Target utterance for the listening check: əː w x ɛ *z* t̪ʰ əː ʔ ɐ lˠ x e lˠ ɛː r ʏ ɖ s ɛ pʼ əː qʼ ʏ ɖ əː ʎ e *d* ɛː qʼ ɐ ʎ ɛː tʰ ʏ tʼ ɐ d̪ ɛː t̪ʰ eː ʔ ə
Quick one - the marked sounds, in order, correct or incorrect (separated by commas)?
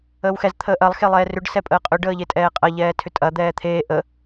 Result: correct, incorrect